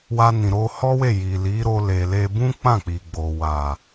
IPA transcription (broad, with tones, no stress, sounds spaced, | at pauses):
w a˧ n ĩ˨ ɾ o˧ h ɔ˦ w e˦˨ j i˨ l i˨˦ ɾ o˧ l e˨ l e˧ b ũ˦ k͡p ã˦˨ k͡p i˨ ɡ͡b o˨ w a˨